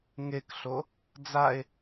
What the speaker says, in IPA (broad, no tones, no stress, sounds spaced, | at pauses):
ŋ e k ɬ o | d͡z a e̯